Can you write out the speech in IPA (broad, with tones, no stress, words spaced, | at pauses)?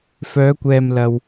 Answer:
fœː˨˧kʷɛː˨mlɐ˨w